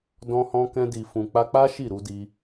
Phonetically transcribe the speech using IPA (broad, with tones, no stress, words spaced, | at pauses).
dɔ̃˧hɔ̃˧kɛ̃˧ di˨fũ˨ k͡pa˧k͡pa˦ ʃi˦˨ɾu˧di˧